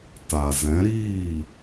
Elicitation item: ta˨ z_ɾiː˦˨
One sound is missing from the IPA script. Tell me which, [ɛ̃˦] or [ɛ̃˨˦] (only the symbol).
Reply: ɛ̃˨˦